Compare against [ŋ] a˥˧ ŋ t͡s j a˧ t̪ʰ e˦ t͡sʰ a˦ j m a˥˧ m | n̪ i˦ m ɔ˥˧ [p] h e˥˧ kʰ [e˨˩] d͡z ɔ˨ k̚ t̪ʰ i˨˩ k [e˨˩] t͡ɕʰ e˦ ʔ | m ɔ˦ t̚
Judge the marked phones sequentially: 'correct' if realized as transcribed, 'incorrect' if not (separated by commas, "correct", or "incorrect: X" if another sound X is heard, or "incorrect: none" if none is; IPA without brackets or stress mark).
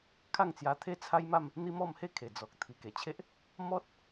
incorrect: kʰ, incorrect: m, correct, correct